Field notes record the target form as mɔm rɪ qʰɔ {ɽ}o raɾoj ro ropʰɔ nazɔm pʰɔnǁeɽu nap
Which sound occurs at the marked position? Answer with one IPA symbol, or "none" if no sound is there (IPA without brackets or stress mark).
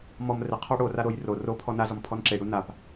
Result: ɽ